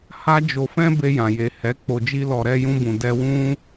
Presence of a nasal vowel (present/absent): present